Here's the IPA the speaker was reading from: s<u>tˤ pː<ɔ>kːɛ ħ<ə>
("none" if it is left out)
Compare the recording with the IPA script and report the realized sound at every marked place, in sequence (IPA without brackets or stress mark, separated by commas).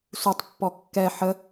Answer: u, ɔ, ə